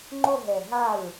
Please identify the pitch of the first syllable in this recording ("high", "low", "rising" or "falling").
falling